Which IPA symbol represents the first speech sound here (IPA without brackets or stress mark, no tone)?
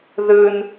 ð